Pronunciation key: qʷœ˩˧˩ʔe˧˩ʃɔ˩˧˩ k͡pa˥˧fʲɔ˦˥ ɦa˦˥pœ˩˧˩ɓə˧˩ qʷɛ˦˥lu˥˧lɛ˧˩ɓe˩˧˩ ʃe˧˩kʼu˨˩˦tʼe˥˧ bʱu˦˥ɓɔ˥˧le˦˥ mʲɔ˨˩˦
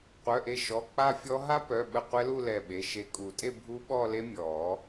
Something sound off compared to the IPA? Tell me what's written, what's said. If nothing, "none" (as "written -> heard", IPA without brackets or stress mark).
none